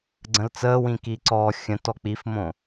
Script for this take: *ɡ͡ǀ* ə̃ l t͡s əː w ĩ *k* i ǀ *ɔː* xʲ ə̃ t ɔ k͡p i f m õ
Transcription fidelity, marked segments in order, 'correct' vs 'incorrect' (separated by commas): correct, correct, correct